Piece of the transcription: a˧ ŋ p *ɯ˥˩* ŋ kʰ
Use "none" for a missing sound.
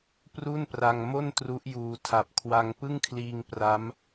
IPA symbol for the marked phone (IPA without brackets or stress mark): ɯ˥˩